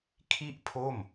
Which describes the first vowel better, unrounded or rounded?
unrounded